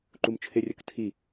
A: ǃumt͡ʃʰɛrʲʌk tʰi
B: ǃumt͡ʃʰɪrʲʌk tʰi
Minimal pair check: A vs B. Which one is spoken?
B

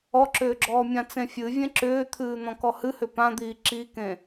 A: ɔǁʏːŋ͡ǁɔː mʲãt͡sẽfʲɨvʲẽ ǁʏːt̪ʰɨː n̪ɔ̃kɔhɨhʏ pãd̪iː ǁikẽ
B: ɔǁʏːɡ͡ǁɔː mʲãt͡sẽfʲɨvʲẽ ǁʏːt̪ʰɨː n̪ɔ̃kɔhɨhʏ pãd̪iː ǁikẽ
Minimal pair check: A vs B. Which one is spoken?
B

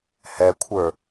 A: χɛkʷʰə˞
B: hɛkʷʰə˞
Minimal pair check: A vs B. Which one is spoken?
B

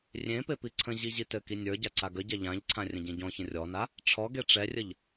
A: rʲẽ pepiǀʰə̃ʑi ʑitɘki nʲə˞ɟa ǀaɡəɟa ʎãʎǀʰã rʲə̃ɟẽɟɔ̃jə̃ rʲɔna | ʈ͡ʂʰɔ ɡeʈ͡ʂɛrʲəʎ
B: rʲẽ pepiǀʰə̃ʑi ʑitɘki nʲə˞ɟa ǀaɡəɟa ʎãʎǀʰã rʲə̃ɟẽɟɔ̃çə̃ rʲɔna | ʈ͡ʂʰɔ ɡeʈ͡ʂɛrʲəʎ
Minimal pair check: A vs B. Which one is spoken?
B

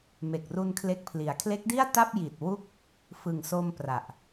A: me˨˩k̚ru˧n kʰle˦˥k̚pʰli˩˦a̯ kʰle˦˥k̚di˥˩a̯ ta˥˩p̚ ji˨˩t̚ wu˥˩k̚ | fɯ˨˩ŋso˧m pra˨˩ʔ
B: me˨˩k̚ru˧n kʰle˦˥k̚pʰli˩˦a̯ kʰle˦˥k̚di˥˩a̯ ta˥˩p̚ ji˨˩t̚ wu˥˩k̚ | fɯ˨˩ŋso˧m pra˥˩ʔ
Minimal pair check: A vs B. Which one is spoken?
A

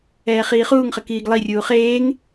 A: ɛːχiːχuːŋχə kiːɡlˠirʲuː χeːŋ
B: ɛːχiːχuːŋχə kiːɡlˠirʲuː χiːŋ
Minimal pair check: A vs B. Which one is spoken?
A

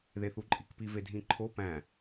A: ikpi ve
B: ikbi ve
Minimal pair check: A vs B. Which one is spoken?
A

